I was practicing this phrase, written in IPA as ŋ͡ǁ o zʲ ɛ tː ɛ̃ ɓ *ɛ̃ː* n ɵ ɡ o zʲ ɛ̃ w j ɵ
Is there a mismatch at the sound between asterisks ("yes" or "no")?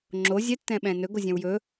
yes